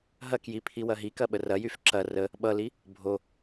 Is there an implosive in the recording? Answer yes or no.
yes